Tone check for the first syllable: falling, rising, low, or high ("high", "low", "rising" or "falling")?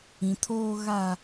low